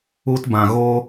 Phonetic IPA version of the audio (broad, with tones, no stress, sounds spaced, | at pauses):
u˦ t b ã˨ ɣ o˦